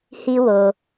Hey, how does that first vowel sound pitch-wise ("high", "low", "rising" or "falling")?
high